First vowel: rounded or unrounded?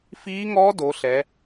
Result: unrounded